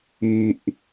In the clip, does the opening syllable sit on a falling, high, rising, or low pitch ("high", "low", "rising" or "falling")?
low